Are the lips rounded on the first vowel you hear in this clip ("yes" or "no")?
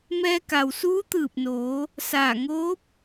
no